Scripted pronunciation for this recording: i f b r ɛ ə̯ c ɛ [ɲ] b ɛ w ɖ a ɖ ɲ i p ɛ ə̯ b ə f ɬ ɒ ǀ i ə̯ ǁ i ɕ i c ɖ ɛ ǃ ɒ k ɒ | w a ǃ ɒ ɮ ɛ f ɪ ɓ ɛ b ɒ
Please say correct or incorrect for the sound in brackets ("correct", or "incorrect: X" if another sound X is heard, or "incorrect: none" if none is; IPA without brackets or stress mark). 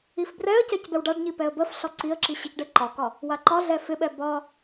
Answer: incorrect: c